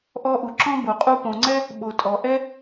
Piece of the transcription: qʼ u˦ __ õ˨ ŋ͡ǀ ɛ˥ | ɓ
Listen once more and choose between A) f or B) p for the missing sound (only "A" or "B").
B